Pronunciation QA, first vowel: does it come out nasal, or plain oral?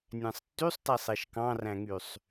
nasal